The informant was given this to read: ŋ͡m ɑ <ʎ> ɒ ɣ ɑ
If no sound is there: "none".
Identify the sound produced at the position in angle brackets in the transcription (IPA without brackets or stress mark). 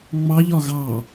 ʎ